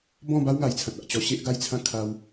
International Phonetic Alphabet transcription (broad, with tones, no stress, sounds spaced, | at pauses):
b ɔ̃˥˧ b a˦ w ŋ a˨˩ j t͡sʰ ã˨ t̚ a˨ ʔ t͡ɕ ɔ˧ ɕ e˦ ʔ ɡ a˦ j t͡sʰ ã˥˧ kʰ a˧ w